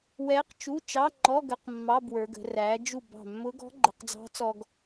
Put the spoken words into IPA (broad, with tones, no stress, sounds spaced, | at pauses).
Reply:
w ɛ˧˥ q t͡ʃ u˧˥˧ t͡ʃ ɑ˧˥˧ ŋ͡ǃ ɔ˧˥˧ ɡ ə˧˥˧ q mː ɑ˧˥˧ b w ə˞˩˧ ɡ ə̤˩˧ r æ˩˧ d͡ʒ u˧˩ b ɑ̤˧˩ mː ʊ˧˥ ɡ ɔ̤˧˥ ɡ͡ǃ ə˩˧ q d͡z ɑ̤˧˥ t͡s ɔ˧ ɡ